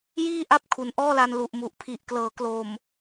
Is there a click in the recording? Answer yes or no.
no